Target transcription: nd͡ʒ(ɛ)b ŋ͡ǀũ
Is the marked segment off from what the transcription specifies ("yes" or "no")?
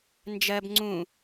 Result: yes